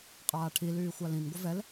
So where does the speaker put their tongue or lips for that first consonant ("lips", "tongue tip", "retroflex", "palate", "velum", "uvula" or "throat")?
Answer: uvula